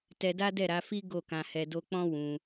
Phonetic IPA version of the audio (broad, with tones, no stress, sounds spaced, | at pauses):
t ɛ˧ d a˦ d ɛ˦˨ ɾ a˨˦ f i˦ ɡ o˦˨ k ã˧ h ɛ˧ d o˧ k͡p ɔ̃˦ w ũ˧